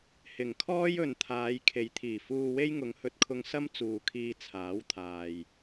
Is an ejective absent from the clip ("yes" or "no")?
yes